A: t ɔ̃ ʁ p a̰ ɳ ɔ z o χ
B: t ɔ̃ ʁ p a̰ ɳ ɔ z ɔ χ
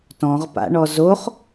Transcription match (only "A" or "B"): A